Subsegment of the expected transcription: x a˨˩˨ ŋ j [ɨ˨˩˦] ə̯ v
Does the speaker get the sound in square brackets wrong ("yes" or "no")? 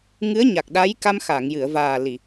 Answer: yes